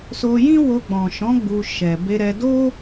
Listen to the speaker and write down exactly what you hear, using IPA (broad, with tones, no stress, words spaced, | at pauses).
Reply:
so˧jĩ˦wo˧ ɡ͡bɔ̃˨ʃɔ̃˨˦ ɡ͡bu˧ ʃɛ˨ be˧ɾɛ˧ do˦